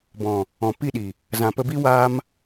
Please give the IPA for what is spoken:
bɔ̃˨ | ɔ̃˨pi˦˨ɗi˨ | zã˨pə˧bi˦ waː˦m

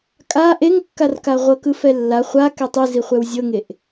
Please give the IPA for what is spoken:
kʼa ʔeŋkːarka ʁʷɤkɯfɛlːa χʷa kɛtˤɯzi χʷɛwzʲɤŋeʔ

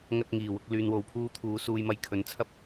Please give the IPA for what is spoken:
ŋɐ˧t̚ ŋiː˨˩wʊ˧k̚ lyː˨nwo˨wpʰuː˧t̪ʰuː˨˧ suː˧jmɐ˧jkʰɵ˨˥nt͡sʰɐ˥p̚

